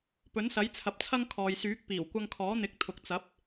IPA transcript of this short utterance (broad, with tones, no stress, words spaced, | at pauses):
pɵ˨˥nsɐ˨˥jt͡sʰɐ˨˥p̚t͡sʰɐ˥ŋ kʰɔː˨jsyː˨˥k̚ piː˨˩wkʷɐ˧ŋkʰɔː˨˥n̪ɪ˨˥k̚ t̪ʰʊ˨k̚t͡sɐ˨˥p̚